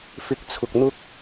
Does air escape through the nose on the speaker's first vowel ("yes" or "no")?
no